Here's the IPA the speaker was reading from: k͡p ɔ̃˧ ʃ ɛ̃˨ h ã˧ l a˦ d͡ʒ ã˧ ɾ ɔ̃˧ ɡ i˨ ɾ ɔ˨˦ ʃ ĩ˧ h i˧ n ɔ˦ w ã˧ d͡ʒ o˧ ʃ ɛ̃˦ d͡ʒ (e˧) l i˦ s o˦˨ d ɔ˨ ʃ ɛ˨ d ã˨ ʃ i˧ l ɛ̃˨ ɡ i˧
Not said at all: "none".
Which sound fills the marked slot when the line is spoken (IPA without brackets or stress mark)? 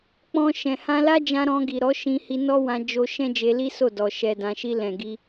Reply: e˧